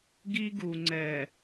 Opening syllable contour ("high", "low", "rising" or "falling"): high